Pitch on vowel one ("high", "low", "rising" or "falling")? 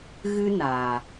high